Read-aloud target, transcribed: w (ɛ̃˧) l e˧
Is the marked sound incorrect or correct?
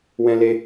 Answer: correct